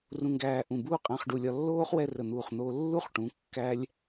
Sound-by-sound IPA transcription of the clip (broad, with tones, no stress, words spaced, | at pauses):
rũ˧ŋɡæː˧ ʔũ˧˩buː˥ qʼæ̃˧χ ɖu˧ lʲɒ˧lːoː˥χ wɛ˥˧rə˧˩n̪uː˧˩χn̪oː˧ lːu˥χʈũ˩˧ kːæ˥lʲ